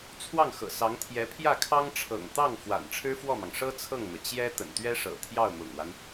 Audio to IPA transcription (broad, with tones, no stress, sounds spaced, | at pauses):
t͡sʰ w ɑ˥˩ ŋ x ɤ̰˨˩ s ɑ˧˥ ŋ t̪ʰ j ɛ˧˥ pʰ j ä˥˩ kʰ ɑ˥ ŋ ʈ͡ʂʰ ɤ̰˨˩ ŋ t̪ ɑ˥˩ ŋ f w a̰˨˩ n ʈ͡ʂʰ ɻ̩˥ f w ɔ˥˩ m ɑ˩ ŋ ʂ ɤ˥ t͡sʰ ɤ˥˩ ŋ n̪ ɤ˩ t͡ɕ j ɛ˥ t̪ ə̰˨˩ n t̪ ɥ ɛ˥ ʂ ɤ̰˨˩ t̪ʰ j ɑ˥˩ ʊ̯ m ʊ̰˨˩ ŋ w a˦ n